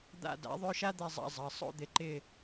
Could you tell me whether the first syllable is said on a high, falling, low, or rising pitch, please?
falling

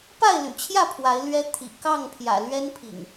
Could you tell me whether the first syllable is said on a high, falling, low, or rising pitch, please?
falling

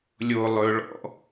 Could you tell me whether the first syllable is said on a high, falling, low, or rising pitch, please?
low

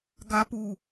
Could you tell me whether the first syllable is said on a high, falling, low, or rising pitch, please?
high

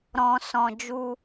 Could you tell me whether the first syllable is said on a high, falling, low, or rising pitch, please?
low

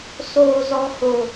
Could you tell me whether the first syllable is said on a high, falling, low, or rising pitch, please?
low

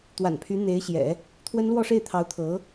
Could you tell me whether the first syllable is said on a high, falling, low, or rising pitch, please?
low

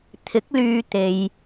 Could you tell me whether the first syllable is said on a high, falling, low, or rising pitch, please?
rising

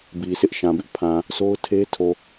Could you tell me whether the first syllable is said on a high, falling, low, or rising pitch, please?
low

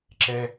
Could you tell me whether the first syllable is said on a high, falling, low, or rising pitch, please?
low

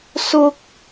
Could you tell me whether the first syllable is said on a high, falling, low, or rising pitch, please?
high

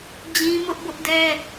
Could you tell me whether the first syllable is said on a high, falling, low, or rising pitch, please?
high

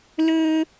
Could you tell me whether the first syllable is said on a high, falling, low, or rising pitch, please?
high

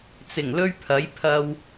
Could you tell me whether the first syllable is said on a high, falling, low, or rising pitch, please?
low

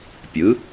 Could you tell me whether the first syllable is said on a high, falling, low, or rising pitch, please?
rising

